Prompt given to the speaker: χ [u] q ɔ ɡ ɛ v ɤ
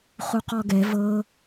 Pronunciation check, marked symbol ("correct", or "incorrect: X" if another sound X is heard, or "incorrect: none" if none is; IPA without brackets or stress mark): correct